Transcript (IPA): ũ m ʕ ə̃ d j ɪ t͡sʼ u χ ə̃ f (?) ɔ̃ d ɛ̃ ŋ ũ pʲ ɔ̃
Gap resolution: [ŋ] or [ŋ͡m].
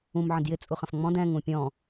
ŋ͡m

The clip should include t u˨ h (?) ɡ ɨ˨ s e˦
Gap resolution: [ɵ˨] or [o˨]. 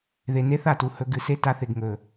ɵ˨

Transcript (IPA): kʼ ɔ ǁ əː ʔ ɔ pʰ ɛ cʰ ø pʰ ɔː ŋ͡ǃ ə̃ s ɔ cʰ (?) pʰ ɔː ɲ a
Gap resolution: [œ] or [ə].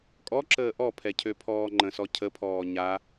ə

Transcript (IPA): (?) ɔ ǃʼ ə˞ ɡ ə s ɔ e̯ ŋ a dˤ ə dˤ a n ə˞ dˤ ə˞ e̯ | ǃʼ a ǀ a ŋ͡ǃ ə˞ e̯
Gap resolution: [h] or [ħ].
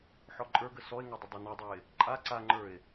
ħ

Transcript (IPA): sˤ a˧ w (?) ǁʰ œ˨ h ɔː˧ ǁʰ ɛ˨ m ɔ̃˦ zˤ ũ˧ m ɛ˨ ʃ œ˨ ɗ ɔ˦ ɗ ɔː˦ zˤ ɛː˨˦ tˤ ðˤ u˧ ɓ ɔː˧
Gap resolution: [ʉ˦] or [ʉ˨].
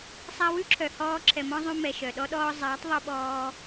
ʉ˦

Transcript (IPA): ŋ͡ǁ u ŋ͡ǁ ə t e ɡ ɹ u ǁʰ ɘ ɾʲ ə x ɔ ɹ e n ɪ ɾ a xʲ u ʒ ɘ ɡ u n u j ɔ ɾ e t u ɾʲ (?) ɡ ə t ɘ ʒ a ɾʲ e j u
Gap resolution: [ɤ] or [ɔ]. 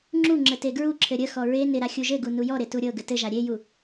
ɤ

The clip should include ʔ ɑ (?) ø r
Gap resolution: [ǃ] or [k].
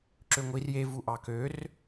k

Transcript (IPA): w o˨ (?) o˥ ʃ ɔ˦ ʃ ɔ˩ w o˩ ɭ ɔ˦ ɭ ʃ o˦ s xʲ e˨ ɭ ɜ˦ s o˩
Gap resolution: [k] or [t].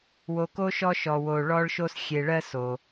k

